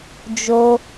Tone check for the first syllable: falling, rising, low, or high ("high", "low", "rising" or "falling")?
high